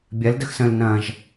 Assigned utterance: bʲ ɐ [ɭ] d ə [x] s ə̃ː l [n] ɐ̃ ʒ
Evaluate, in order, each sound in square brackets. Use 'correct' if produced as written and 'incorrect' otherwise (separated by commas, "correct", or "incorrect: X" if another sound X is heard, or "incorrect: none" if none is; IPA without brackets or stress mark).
incorrect: l, correct, correct